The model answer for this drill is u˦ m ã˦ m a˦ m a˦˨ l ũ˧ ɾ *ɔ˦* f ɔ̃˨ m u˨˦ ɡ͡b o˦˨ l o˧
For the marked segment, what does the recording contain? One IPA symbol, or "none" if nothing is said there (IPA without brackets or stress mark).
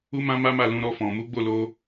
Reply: ɔ˧